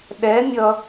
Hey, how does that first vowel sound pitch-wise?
rising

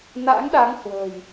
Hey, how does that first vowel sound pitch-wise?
rising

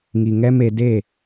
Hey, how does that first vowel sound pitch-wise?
low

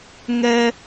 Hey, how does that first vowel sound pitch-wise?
high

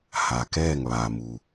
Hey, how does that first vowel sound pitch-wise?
low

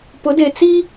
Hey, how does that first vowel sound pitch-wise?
rising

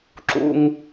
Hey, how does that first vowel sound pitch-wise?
high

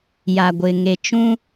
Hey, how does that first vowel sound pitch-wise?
low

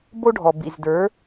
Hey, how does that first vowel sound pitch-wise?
high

